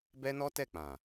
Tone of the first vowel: high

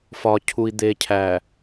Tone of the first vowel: low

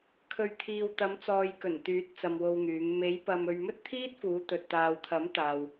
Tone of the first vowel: low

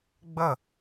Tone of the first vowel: falling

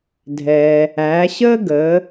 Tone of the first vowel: low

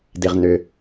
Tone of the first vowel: low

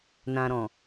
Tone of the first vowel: low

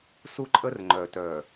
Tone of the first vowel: high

